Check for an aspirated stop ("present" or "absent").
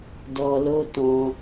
absent